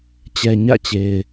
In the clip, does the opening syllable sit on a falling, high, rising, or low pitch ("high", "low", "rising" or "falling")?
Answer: low